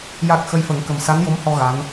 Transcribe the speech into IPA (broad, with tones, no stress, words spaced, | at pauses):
ja˨˩k̚ xə˧jfə˨˩˦ŋkə˨˩m sa˧˥njo˧˥mhɔ˧ ɣa˧˥n